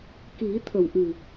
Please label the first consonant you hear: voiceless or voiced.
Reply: voiceless